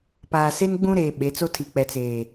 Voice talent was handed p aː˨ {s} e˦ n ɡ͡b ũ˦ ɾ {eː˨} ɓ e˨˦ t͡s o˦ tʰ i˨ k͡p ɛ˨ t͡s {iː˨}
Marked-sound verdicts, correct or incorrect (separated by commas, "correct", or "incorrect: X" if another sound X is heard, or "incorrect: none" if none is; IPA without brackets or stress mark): correct, correct, incorrect: eː˨